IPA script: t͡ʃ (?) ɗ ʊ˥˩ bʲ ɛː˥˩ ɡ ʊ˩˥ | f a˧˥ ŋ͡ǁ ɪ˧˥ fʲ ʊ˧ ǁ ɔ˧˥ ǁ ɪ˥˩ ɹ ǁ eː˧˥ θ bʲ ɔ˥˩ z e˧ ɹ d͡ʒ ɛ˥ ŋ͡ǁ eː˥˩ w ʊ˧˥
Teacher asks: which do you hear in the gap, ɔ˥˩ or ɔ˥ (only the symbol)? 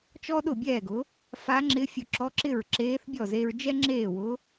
ɔ˥